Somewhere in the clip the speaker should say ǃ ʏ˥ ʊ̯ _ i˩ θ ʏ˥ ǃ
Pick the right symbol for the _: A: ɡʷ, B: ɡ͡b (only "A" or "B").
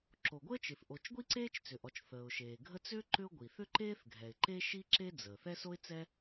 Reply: A